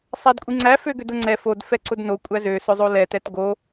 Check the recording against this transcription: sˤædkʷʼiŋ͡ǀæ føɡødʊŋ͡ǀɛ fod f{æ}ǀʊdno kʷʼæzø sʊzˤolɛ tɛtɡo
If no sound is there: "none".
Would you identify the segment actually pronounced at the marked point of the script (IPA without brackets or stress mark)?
ɛ